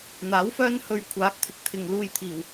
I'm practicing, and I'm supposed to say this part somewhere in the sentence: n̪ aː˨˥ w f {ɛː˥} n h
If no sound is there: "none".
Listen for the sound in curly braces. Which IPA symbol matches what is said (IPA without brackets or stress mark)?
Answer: œː˥